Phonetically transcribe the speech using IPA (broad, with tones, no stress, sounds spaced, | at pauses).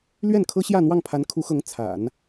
l ɥ ɛ˥˩ n kʰ ɤ˥ ɕ j ä˥˧ n̪ w ɑ˥˩ ŋ pʰ a˧˥ n kʰ u˧˥ x ɤ˧˥ ŋ t͡sʰ a̰˨˩˦ n